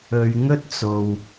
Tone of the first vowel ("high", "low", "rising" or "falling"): low